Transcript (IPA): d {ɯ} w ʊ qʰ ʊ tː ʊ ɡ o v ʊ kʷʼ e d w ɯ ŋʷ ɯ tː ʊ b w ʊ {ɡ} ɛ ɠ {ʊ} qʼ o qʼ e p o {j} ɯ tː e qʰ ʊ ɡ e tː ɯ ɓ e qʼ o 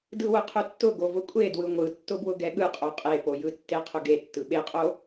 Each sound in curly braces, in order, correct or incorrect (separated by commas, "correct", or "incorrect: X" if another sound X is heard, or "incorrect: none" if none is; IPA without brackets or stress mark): correct, correct, incorrect: ɯ, correct